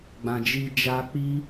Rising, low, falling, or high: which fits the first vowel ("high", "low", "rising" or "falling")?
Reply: low